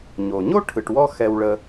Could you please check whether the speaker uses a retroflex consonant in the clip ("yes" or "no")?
yes